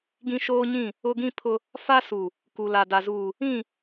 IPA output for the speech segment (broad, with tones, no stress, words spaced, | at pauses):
ɡĩ˦ʃoː˦ɲĩ˦˨ | ʊ˦ɡĩ˦ pʰʊ˦ | fa˦su˨ | ku˨la˨ da˨zuː˨ | ĩ˦˨